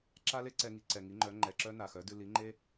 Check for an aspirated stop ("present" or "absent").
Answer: absent